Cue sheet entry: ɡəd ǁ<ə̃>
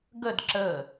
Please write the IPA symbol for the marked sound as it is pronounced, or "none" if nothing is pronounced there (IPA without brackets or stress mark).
ə